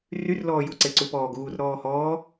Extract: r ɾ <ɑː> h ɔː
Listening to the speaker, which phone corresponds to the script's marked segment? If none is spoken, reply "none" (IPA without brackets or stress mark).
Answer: ɔː